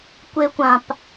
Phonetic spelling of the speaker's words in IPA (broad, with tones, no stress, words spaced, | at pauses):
kʷe˧kʷã˨p